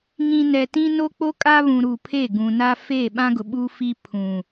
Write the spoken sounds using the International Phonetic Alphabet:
ŋ ĩ˨ n ɛ˨ t ĩ˦ n o˦ k͡p o˦ kʼ a˦ β ũ˨ ɾ u˨ pʰ e˦˨ ɡ ũ˨ n a˦ f eː˦˨ ɓ ã˦ ɡ ʊ˨ ɓ u˦ f i˦ pʰ ũ˨

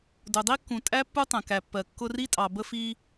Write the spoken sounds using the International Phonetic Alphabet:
d ʊ˨ dˤ i˦ kː ũ˨ tʼ æ˦ pː u˦ tˤ ɛ̃˨ k æ˨ pː ɜ˨ kː ʊ˧ r i˦ tʼ ɑ˨ b ə˧ f i˧

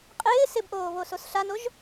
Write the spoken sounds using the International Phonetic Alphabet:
qʼ ɪː s ɪ b ʔ oː β o s o s ɬ a n o ʒ

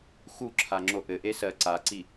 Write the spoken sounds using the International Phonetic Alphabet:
x u ǁʰ a ŋ͡ǁ o ʔ ɘ ʔ e s ɜ ǀ a ǀ i

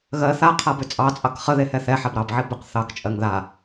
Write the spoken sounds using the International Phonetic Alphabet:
ɣ ɜ θ a qʰ a b ʏ t͡sʼ ɑ t͡sʼ ɑ k χ ə ð e h ɛ θ ɛ ħ a b ɾ ɑ b ʕ i b ʏ q θ ɑ k t͡ʃʼ ɜ ŋ ð a

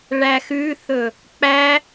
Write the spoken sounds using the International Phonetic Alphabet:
ɭ æ x ʉ θ ɵ | k͡p æ

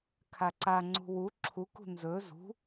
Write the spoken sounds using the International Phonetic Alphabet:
kʰ a ǀ a ŋ͡ǀ ṳ w u ǁʰ u k ṳ n z ɵ z ṳ

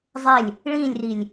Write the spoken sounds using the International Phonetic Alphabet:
zˤ e lʲ | ɭ ĩ lʲ r i lʲ

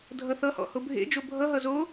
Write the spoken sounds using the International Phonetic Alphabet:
dʱ ʌ θ ʌ h ɔ̰ h o bʱ ḛ d͡ʒ o bʱ ʌ ɦ ʌ z o

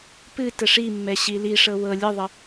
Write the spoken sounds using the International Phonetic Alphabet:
p ɨ t ə ʂ i mː ɛ ɕ i l i ʂ ɤ w ɤ lʲ ɨ ðˤ ə

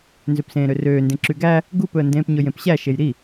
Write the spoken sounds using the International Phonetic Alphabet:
n z ø p s ẽː ɾ ø r øː n d ẽ ǁ y ɡ æ | ɡ u p ɵ ə̯ n d ẽː p ɲ ɵ j ẽ p ɕ æ ʃ e j ɾ i

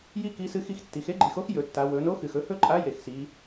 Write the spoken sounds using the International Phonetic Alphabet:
j i˥ k i˧˥ s ɨ˧˥ x i˧ x tː i˩˧ x e˥ ɡ͡ǃ i˩˧ x o˧˥ x j ɵ˩˧ tː a˩˧ w ɵ˩˧ n o˧˥ x ɨ˩ x ɵ˧ h ɵ˥ ǃʼ a˧˥ j e˩ x s i˩˧

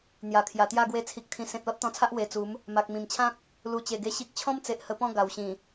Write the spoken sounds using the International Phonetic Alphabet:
n̪ j a˨˩ kʰ j a˨˩ t̪ j a˥˧ ɡ w e˧ t͡sʰ i˨ k̚ t̪ʰ ĩ˨˩ s ẽ˨ t̚ l ɔ˦ t̚ t̪ ɔ̃˧ t͡sʰ a˦ ʔ w e˧ t͡s u˨˦ m | m a˨ k̚ m ĩ˨˩ m t͡ɕʰ ã˦ k̚ | l u˨˩ t͡ɕ e˨˩ ɡ e˧ ɕ i˦ k̚ t͡ɕʰ ɔ̃˦ m t͡s e˨ ʔ h ə˧ p ɔ̃˥˧ ɡ a˨˩ w ɕ ĩ˨˩

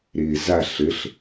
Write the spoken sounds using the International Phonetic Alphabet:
ɾ ɪː z a ɬ ɘ ɬ

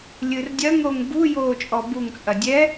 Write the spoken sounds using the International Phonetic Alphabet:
lʲ ɨ r dʲ ɐ ŋ ɾ o ŋ b u j oː t͡ʃʼ ɔ b u ŋ t͡sʼ ɐ dʲ ɛ

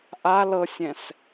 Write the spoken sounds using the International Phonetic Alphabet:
ʔ a l ɤ sʲ ɛ̃ s

